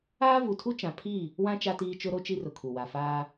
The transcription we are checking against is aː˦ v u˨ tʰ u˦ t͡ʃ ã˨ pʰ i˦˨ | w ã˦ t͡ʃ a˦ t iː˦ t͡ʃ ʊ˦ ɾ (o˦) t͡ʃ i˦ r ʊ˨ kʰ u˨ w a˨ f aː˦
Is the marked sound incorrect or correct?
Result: correct